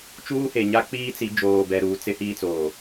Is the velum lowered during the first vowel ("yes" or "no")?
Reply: no